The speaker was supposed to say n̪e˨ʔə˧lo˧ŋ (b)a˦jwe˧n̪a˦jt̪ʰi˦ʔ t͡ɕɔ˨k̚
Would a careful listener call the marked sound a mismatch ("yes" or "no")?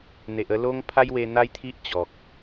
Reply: yes